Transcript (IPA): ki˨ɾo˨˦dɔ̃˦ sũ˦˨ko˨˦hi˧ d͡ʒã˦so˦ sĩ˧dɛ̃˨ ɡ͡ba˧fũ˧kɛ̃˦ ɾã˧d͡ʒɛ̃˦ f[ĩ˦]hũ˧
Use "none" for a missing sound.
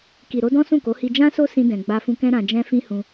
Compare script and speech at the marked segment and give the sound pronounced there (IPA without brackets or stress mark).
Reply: ĩ˦